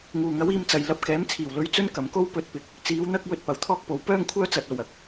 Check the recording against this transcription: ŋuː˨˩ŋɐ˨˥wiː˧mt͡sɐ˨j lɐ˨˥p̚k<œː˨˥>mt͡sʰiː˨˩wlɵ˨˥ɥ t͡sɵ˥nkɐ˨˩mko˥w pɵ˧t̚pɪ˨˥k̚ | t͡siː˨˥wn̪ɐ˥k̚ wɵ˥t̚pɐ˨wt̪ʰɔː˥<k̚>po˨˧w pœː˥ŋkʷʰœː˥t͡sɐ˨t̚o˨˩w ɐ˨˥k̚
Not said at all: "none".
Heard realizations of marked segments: ɛː˨˥, k̚

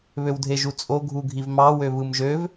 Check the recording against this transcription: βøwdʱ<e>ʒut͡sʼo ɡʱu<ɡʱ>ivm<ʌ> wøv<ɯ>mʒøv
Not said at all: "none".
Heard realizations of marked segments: e, ɡʱ, ɑ, ɯ

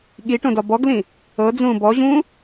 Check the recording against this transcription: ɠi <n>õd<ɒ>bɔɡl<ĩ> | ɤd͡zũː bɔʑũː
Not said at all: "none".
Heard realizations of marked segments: ʈ, ɒ, ĩ

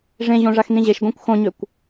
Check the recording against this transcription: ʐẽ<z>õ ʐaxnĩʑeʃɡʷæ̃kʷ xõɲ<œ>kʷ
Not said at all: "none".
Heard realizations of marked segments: ʑ, ø

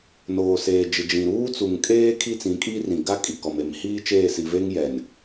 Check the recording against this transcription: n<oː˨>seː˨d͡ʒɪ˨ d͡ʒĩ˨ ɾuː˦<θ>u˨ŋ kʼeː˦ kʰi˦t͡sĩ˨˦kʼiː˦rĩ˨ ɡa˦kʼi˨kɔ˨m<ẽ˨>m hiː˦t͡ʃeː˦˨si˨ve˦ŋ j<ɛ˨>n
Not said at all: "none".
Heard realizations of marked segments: oː˨, t͡s, e˨, ɛ˨

